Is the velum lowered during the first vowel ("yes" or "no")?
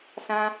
yes